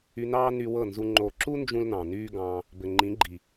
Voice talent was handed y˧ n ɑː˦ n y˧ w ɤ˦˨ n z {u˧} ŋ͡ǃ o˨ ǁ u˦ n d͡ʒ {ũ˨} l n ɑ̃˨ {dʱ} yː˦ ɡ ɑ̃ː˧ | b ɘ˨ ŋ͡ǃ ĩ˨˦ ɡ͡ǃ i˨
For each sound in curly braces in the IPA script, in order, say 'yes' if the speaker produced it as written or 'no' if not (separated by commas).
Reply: yes, no, no